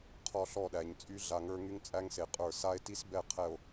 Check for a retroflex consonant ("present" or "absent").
absent